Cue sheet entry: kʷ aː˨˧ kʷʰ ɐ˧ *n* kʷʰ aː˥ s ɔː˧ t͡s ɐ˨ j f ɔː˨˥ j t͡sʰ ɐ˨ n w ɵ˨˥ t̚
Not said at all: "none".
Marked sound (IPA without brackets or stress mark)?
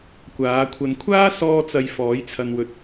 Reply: n